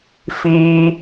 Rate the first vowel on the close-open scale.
close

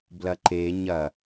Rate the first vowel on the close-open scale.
open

